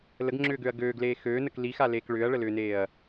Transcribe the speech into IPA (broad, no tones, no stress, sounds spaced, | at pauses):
l ə ɡ ŋ͡ǁ ʏː ɡ ø ɐ̯ ɡ øː ɡ l eː x øː n ə k l i x a l eː k ɭ ʏː ɐ̯ ɭ ə l ʏː n eː ɐ̯